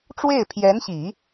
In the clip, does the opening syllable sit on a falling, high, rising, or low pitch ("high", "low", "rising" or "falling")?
falling